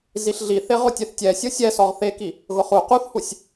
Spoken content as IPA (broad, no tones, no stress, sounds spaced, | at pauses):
z i ɬ ɮ i θ e ʁ ʊ tʲ e θ tʲ ɛ sʲ o sʲ ɛ s ɔ ʁ θ e k i | ɣ ʊ χ u q u θ h u sʲ